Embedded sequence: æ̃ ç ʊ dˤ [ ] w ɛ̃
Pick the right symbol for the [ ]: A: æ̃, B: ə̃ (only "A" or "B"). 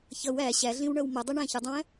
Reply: B